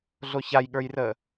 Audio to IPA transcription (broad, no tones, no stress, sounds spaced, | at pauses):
ɮ o ç a j ɠ ə˞ j r əː